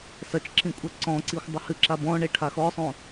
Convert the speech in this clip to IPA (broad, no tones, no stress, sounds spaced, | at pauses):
s ɐ t͡ʃ ǁ ĩ kʷʼ ɛ ǀ ɔ̃ ǀ i xʷ dˤ ɘ h ɨ ǁ a b ɔ̃ ɳ e ʈʰ a x ɔ sˤ õ